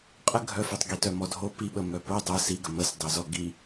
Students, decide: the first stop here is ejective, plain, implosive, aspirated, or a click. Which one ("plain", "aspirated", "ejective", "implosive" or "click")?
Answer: ejective